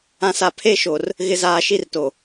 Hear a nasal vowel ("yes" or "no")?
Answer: yes